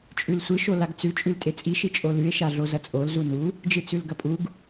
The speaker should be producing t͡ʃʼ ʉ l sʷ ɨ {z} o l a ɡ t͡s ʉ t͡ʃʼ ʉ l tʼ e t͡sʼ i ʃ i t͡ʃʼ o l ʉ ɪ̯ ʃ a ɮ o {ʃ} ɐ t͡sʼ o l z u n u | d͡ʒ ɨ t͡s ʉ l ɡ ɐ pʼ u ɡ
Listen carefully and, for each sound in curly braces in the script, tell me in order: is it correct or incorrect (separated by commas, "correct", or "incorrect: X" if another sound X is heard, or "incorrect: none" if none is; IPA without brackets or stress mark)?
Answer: incorrect: ʃ, incorrect: z